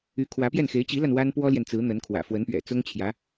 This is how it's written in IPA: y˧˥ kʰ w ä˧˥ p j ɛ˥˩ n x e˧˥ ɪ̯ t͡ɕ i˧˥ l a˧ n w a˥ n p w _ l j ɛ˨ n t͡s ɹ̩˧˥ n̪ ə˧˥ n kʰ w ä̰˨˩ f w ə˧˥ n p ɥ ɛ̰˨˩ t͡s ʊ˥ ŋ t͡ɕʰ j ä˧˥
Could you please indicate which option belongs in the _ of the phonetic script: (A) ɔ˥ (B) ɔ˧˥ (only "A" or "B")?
A